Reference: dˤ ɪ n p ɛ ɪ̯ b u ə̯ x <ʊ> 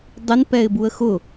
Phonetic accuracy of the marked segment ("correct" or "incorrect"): correct